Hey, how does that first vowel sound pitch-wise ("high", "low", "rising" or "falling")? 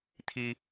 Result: high